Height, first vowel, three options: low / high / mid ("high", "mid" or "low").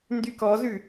high